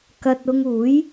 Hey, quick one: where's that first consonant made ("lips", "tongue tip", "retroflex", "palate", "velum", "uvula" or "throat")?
velum